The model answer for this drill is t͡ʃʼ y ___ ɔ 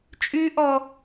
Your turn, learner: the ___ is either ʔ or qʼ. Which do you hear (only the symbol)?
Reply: ʔ